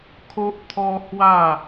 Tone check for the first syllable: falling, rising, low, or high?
high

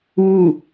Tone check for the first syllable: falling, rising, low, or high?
falling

